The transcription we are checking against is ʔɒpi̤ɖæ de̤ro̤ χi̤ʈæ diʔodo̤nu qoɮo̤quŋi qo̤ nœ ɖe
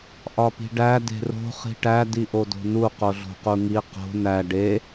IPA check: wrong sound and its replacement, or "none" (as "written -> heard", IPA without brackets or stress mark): œ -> æ